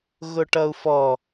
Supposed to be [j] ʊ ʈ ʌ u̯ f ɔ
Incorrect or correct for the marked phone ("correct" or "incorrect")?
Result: incorrect